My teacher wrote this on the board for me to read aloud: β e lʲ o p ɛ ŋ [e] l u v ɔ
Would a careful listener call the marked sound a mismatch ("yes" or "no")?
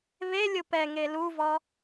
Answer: no